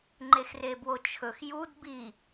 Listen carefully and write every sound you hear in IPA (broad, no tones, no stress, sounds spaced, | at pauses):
ŋ͡ǃ e x r e b w o t͡ʃʰ ɵ x j u d b i